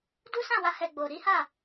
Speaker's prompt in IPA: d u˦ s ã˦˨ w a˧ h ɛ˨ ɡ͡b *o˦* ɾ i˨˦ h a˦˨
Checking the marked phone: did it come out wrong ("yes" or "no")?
yes